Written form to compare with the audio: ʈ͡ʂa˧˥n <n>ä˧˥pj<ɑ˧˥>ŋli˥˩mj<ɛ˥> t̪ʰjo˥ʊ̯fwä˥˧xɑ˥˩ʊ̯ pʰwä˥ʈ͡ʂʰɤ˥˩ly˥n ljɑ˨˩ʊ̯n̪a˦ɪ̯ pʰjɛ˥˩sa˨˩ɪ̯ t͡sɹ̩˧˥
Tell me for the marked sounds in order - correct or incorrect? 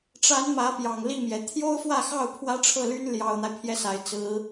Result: incorrect, incorrect, incorrect

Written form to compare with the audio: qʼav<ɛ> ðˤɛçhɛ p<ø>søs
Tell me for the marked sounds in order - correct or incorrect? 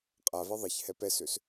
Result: correct, incorrect

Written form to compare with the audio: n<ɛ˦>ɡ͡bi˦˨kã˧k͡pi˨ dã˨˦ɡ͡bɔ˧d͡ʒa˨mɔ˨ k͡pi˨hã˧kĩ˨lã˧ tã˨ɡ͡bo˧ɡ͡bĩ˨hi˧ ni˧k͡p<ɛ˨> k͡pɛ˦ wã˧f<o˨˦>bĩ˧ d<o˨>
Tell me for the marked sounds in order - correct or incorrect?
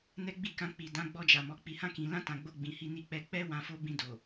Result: correct, incorrect, incorrect, correct

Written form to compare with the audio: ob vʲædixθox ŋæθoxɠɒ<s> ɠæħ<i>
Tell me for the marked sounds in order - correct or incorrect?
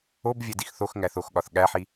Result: incorrect, correct

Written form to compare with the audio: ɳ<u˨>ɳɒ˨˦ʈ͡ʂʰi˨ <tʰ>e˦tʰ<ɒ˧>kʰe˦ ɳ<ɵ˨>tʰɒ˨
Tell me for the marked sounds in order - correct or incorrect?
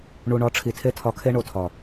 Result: correct, correct, correct, incorrect

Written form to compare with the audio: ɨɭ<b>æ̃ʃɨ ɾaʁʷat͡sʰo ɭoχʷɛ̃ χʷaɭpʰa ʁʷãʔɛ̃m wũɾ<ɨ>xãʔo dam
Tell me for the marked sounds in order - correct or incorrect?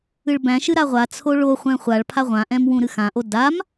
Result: correct, correct

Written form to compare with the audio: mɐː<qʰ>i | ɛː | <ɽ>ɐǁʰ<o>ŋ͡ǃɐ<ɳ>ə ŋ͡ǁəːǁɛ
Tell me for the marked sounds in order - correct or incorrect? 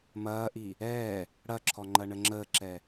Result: incorrect, correct, incorrect, correct

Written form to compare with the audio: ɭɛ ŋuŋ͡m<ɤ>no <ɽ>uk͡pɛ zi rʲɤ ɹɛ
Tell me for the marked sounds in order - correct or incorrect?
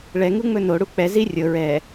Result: incorrect, correct

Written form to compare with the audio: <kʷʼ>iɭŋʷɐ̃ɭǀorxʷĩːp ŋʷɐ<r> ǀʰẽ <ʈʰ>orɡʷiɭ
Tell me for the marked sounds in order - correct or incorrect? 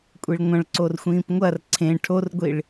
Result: correct, correct, correct

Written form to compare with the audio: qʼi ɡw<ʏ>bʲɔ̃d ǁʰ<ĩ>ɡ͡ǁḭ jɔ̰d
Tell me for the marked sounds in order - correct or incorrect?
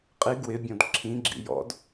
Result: incorrect, correct

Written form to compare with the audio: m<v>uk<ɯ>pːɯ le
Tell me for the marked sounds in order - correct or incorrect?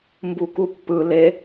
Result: incorrect, incorrect

